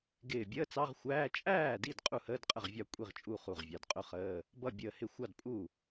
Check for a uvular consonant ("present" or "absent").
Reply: present